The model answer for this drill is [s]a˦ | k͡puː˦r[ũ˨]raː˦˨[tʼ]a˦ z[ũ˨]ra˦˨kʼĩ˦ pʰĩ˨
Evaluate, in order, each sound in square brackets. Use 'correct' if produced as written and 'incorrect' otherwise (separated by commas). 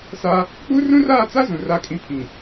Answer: correct, incorrect, incorrect, correct